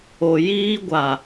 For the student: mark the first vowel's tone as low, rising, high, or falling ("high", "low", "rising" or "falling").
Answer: low